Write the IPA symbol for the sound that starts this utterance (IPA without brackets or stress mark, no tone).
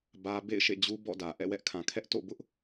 b